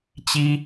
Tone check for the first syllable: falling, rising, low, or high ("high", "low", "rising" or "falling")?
high